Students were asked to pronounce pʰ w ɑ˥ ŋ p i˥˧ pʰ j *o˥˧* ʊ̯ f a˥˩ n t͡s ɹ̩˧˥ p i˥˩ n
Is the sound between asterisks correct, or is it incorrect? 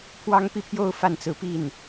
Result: correct